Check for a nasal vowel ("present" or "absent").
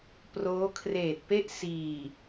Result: absent